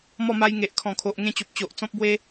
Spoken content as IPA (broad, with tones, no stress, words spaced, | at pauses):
mɔ˥˧ma˦j ŋe˨ʔ kʰɔ̃˨˩kʰo˨ʔ ŋẽ˥˧t͡ɕo˨p̚ t͡ɕo˨ʔt͡sɔ̃˦p̚bwe˦